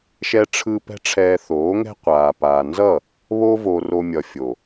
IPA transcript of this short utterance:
ʃɛ˧ʈ͡ʂʰɯ˧ pɛ̤˦ʈ͡ʂʰɛː˧θoː˨˦ŋɛ̤˦ qʷaː˨paː˨nzʌ˦˨ | βo˦vo˧ro˧ mʲʌ˨fʲo˨

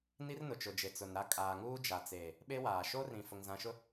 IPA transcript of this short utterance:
ni˦rnʊ˨t͡ʃʊ˨d͡ʒe˨ t͡sʊ˨nɾa˦ kʼaː˨ŋuː˦ d͡ʒa˨t͡seː˨ | ɓe˦waː˨ ʃo˦rĩ˨ fʊ˨ŋzã˨ʃʊ˦

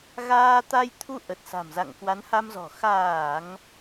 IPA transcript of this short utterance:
ɣaː˧ t̪a˧j t̪ʰu˧ ʔə˨˩t̚sa̤˨˩mza̰˧˨ŋ kwa˨˦nha˧mzɔ̤˨˩ xaː˧˩˨ŋ

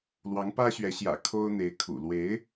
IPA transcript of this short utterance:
lwɑ˧˥ŋpä˥ɕɥɛ˧˥ɕjä̰˨˩ kʰo˥ʊ̯n̪e˧˥ɪ̯kʰṵ˨˩ lwe˧˥ɪ̯

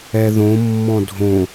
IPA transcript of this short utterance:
ɛðõ mːɔ̃dʱõ

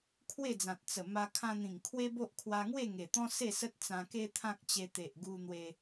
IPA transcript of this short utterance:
kʰwe˥˧d͡zã˨t̚ t͡sə˨˩ma˧ kʰã˧n̪ĩ˨˩ŋkʰwe˦bo˦ʔ kʰwa˧ŋwe˥˧ ŋe˨˩t̪ɔ̃˦ se˥˧sə˦t̚ t͡sã˧ke˦t̪ʰã˦k̚t͡ɕe˧ t̪e˨ʔ ɡu˧n̪we˧

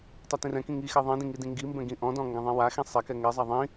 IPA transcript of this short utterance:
tˤɛtĩrɛ̃kĩ ŋixɛ ðˤĩdĩ ŋidĩŋɡimbɛ̃ ɡĩʔɔ̃dɔ̃ ŋɡɛ̃ðˤĩwaxĩ sˤɛkɛ ŋɛzˤa ðˤĩ

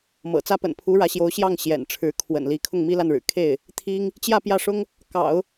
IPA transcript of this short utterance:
mɤ̰˨˩ t͡sä˥pə̰˨˩n pʰu˧˥ɻä˧˥ɕjo˧˥ʊ̯ɕjɑ˥˩ŋ ɕjɛ̰˨˩nʈ͡ʂʰɻ̩˧˥ kʰwə̰˨˩nli˧˥ kʰʊ˥˩ŋmi˥la˥˩nɻɻ̩˨˩ kʰe˥˩ɪ̯ | t̪ʰi˥ŋ | t͡ɕjä˥˧ pjä˥˩ʂʊ˥ŋ | kɑ̰˨˩˦ʊ̯

